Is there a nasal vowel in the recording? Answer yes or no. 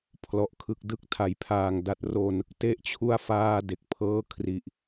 no